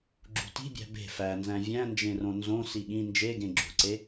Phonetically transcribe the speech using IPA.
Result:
ɡ͡ǁṳti̤bʲæ̤ be̤ fænzæ̃ vʲæ̃nd͡ʒẽrõ nzõ siɠĩ nd͡ʒeɡẽ ɡ͡ǁṳǀe

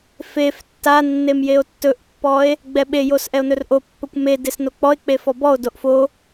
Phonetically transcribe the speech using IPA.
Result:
fef tːa nːemjeo̯tːɵʔpːɔe̯ | ɡ͡bɛɓejos ʔɛo̯nɵrʔopːɵkʷ me desnok͡pɔe̯k͡pe fɔbɔo̯doʔ fo

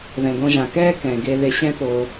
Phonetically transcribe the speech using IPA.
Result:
ðɛ̃˩ɡõ˨ ʒã˩kɛː˦ kɛ̃˩ɡe˨ ðe˨ɕɛ̃˦ po˨

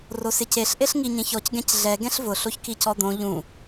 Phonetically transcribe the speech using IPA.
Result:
rosɪceɬ ʔeɬŋiɲẽçɔc ɡɛ̃cɮɛ ɡɛ̃ɬvʊ ɬoçkicɔd̪õ ʎũ

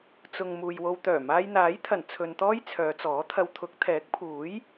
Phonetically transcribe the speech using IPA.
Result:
t͡sʊ˨ŋ muː˨jwo˧wt̪œː˨˩ maː˧jn̪aː˨˥jt̪ʰɐ˨˩n t͡sʰɵ˨nt̪ɔː˥j t͡sʰœː˨˧t͡sɔː˨˥t̪ʰɐ˧w t̪ʰʊ˨˥k̚t̪ʰɛː˨˥k̚pʰuː˨˥j

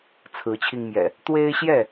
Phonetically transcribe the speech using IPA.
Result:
t͡sʰɹ̩˨˦t͡ɕʰi˧ŋmjɛ̰˨˩ | t̪we˦ɪ̯ɕjɛ˥˨

